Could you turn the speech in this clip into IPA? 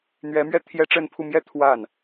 n̪ ɥ ɛ˧˥ m ɥ ɛ˥˩ t̪ʰ j ɛ˥ ʈ͡ʂ ə˥˧ n pʰ u˥˧ m j ɛ˥˧ t̪ʰ w a˥˩ n

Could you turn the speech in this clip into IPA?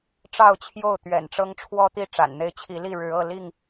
ʈ͡ʂ ɑ˥˨ ʊ̯ t͡ɕʰ j o˥˨ ʊ̯ t̪ ɥ ɛ̰˨˩ n ʈ͡ʂ ɤ˦ ŋ ʈ͡ʂʰ w ɔ˦ t̪ i˥˨ ʈ͡ʂ a̰˨˩ n n̪ e˦ ɪ̯ t͡ɕʰ i˨˦ l i˥˨ ɻ ɻ̩˨˦ ɤ˥˨ l i˥˨ ŋ

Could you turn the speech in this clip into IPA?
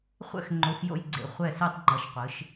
χʷ ɛ̰˧ x ŋ͡ǃ o˩˧ x j o̰˧˩ j ɡ͡ǀ ḛ˩˧ χʷ ɛ˧˩ s ɯ˧˩ tˤ ŋ͡ǃ ʌ˩˧ ʃ qʷ ɯ˩˧ ʃ

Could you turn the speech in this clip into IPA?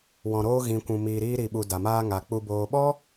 w ɔ̃˨ ɾ oː˧ ɣ ĩ˨ kʷ ũ˨ m iː˨ ɾ iː˧ ɾ i˨ ɓ u˨ d a˨ m aː˦ ŋ a˨ k͡p u˨ b oː˨ ɓ ɔ˦

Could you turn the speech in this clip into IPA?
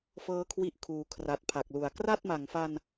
f ɤː˦˥ kʰ w i˦˥ ʔ kʰ uː˨˩ kʰ r a˨˩ t̚ pʰ a˨˩ k̚ l u˨˩ a̯ k r a˥˩ t̚ m a˨˩ ŋ f a˧ n

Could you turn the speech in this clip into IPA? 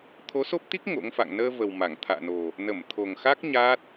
t̪ʰ o˨˦ s o˦˥ p̚ t̪ i˦˥ k̚ ŋ o̰˧˥ ŋ f a̰˧˨ ŋ n əː˧ v ə˨˩ w m a˧˩ ŋ t̪ʰ a̰ː˧˨ n o˨˩ | n ə˧˩ m t̪ʰ o˨˩ ŋ x a˦˥ k̚ ɲ aː˦˥ t̚

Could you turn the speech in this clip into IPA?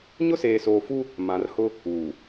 ɲ ʊ˦ s eː˨ s oː˨ f u˦ | m ã˨ r h ʊ˦ | uː˨

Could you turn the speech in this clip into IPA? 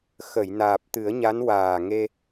x ə˨˩˨ j n aː˨˩ p̚ t̪ ɨ˨˩˦ ə̯ ɲ a˧˥ n w aː˨˩ ŋ e˧

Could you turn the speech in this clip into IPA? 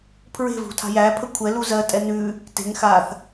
pʰ ɹ e̤ v ṳ tʰ a̤ j æ pʰ ə kʷʰ ɛ l u z ɜ tʼ ɛ n ʉː | t e̤ ŋ x aː θ

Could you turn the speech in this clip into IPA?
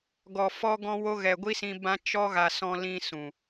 ɡ ɔ˨ f ɔ˦ ɡ ɔ̃˦ w o˦ ɣ ɛ˨ ɡʷ i˦ s ĩ˧ b ã˦ t͡ʃ ɔ˦ ɣ a˧ s ɔ̃˧ l ĩ˧ s ũ˨

